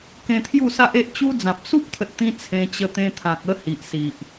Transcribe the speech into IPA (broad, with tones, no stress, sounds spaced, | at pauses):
k ẽ˧ t̪ʰ j u˥˧ s a˦ ʔ e˦ ʔ t͡ɕ u˦ d͡z ã˨ p̚ s u˦ p̚ t̪ʰ ə˨ t̚ t̪ ĩ˧ t͡sʰ ẽ˧ t͡ɕ ə˧ t̪ ẽ˧ t̪ʰ ã˨ k̚ ə˦ h i˨ ʔ s i˨ ʔ